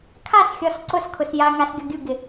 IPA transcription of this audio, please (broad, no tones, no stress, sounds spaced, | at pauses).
kʰ a s xʲ ɔ s ǀ ʊ s kʰ ʊ s j a ŋ a s ɡʲ ɔ ɡʲ u ɡ ɪ